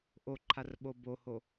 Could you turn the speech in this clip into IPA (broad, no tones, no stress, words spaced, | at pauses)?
ʔoǃʰarɓo boho